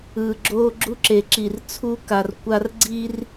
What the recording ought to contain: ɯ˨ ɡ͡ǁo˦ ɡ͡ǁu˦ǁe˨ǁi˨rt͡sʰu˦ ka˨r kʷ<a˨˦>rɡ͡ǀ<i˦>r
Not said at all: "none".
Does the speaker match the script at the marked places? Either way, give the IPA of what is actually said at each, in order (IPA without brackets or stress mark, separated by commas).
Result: a˦, i˦